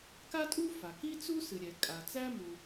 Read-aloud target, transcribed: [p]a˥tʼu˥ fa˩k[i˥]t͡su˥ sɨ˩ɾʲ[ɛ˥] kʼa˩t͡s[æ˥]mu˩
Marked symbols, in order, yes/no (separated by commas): no, yes, no, yes